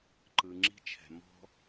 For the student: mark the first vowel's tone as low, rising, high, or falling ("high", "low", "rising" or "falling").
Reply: low